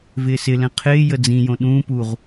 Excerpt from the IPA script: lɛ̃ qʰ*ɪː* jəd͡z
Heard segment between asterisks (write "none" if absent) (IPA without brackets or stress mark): ɪː